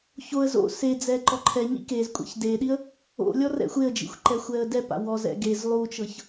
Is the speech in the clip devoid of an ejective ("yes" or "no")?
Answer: no